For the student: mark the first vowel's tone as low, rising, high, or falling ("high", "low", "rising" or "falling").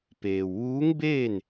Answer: low